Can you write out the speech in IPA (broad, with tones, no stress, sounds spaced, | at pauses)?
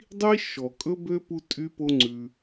dˤ i˦ ʃ ɔ˨ kʼ ɵ˦ b ø˦ p u˧ tʼ y˦ p o˦ ŋ͡ǀ ʉ˧